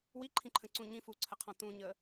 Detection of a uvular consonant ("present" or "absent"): present